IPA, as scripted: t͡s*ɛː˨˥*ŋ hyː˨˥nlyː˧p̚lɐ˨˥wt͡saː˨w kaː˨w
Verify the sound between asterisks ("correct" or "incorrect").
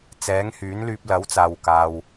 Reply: correct